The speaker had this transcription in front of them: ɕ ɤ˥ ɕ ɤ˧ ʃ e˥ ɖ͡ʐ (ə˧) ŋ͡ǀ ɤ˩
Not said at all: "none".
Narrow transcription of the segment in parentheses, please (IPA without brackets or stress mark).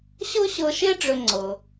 ʏ˧